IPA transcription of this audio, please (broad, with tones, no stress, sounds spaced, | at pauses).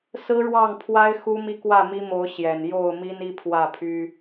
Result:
s ɹ̩˦ ɻ w ɑ˥˨ ŋ pʰ w a˦ ɪ̯ x u˦ m i˦ k w ä˥˨ m i˦ m o˨˦ ʊ̯ ɕ j ɛ˨˩ n j o˥˨ ʊ̯ m i˦ n i˦ pʰ w ä˥˨ pʰ y˦